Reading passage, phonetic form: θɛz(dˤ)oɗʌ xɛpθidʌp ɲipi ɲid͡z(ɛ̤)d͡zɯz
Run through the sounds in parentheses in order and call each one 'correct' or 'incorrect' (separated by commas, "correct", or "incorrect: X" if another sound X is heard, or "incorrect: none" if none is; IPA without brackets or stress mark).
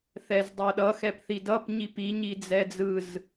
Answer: correct, incorrect: ɛ